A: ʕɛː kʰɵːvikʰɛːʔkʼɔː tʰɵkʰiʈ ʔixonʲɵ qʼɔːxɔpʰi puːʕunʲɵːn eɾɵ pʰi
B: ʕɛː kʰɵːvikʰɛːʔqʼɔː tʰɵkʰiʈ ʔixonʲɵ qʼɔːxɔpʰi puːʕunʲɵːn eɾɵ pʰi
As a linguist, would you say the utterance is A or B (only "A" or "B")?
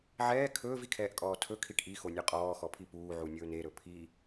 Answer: A